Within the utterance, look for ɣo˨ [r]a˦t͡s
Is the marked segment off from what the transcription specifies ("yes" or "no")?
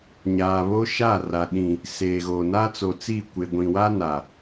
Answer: yes